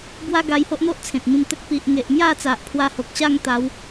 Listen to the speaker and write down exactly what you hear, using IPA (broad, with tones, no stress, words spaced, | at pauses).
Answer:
bwa˦ɡa˧jho˦ʔn̪o˦ʔ t͡sʰẽ˨t̚mĩ˧mt̪ə˦k̚ pi˨ʔŋe˨ʔmja˥˧t͡sa˨ʔ pʰwa˧ho˨k̚ɕa˥˧ŋ t̪a˨˦w